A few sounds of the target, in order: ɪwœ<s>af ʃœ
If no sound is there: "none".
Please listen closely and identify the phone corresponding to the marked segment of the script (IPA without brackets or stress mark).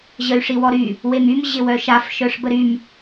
ʃ